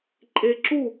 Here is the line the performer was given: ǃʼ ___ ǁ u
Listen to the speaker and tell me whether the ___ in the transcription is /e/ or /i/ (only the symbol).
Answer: e